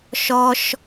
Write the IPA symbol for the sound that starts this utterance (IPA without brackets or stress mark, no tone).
ʃ